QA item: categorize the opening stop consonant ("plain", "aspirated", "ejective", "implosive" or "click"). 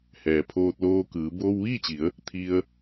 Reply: aspirated